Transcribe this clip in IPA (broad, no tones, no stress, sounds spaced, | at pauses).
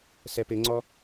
s ɛ p ɪ ŋ͡ǀ ɔ